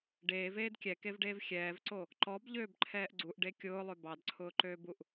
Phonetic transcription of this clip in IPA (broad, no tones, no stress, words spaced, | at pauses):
ɖeːveːd kʲɛkevɖeːv xʲɛːvǀo | ǃɔbʎøːbǃʰɛːʔ ɡ͡ǀuʔɖe kʲʊːlˠø bɑdǀʰʊːǃøːbuʔ